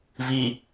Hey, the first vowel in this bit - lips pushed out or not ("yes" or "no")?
no